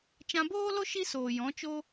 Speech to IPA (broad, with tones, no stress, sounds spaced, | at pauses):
t͡ʃ ã˧ b oː˦ l o˦ ʃ i˦ s oː˨ j ɔ̃˨˦ t͡ʃ o˦